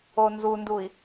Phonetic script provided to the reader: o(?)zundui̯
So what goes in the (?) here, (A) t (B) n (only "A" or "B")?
B